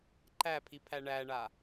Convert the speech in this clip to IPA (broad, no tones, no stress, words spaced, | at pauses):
ǃæpʰipʰæ ɳæɳa